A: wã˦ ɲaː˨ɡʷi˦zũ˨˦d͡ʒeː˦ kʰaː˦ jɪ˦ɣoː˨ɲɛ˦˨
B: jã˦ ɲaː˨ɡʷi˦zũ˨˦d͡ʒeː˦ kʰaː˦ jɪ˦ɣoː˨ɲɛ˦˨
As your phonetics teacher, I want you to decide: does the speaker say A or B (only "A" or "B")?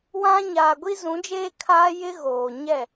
A